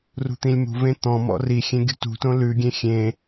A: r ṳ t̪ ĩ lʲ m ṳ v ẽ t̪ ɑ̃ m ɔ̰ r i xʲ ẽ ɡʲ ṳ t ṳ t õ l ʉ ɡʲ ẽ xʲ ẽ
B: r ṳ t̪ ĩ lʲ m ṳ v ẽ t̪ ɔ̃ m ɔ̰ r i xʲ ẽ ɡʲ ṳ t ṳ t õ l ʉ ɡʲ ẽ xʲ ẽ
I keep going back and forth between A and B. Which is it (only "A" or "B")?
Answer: B